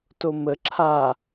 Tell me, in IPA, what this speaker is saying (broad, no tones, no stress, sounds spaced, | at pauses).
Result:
t o m ə ǁʰ a